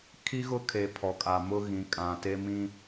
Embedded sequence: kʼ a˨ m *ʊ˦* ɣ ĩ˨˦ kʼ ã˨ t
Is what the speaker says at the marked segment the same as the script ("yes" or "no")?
yes